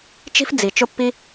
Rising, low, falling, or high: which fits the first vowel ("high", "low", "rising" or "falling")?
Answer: high